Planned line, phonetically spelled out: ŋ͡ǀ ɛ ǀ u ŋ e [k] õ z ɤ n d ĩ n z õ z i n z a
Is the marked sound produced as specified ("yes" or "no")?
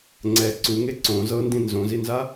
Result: no